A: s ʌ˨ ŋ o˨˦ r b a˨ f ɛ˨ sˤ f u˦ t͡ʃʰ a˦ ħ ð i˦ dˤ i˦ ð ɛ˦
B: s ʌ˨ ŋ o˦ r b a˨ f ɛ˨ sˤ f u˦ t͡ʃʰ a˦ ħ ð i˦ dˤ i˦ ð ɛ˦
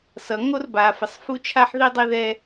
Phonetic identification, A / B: B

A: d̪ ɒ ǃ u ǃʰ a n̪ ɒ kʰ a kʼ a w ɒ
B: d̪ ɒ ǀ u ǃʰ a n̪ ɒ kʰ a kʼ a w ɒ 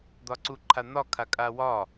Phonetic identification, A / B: B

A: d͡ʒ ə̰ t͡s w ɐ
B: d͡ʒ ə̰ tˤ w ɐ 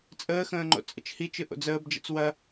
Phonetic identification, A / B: A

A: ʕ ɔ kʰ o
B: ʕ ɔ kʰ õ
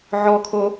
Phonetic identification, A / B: A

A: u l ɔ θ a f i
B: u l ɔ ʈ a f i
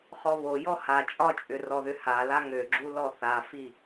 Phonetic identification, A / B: A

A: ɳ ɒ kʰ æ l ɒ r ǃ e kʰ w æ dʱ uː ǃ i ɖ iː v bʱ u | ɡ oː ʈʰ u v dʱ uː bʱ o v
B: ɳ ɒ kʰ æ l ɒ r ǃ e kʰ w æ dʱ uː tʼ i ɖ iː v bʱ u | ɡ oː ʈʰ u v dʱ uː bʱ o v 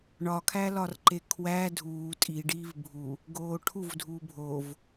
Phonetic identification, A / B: B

